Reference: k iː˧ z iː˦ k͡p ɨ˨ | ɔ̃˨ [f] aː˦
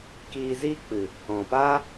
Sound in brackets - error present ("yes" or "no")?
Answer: yes